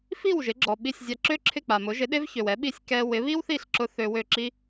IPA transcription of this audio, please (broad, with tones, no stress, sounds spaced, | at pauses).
f i˥˩ w ʒ ɪ˩˥ ɡ͡ǁ ɔ˩ ɓ i˥˩ sʲ zʲ a˧ ǁ ø˥ ǁʰ ɪ˥˩ k͡p a˩ m ʊ˩˥ ʒ ɪ˩˥ ɗ e˥ v ç ø˩ w ɛ˩˥ ɓ i˥˩ sʲ k ɛ˧ w ɪ˩˥ β i˥ w θ i˥˩ ɬ ǁ ʊ˧ θ ø˧ w ø˥˩ ǁ i˥